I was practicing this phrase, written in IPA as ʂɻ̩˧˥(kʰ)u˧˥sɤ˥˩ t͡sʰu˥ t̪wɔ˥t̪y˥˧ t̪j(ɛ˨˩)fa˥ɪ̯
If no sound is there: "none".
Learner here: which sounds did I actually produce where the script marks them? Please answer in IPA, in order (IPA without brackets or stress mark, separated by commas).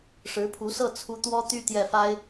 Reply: pʰ, ɛ˥˩